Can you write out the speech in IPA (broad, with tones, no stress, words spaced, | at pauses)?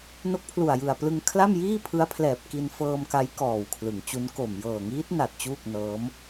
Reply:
no˦˥k̚pʰlu˨˩a̯jɯ˨˩a̯plɯ˧ŋ kʰla˥˩mjiː˥˩pʰɯ˦˥a̯pʰlɛː˨˩p̚ ki˧nfɤː˧mka˦˥j kɔː˨˩wkʰlɯ˩˦ŋt͡ɕu˦˥n ko˨˩m jɤː˨˩ŋiː˦˥t̚na˨˩t̚ t͡ɕuː˥˩k̚nɤː˦˥m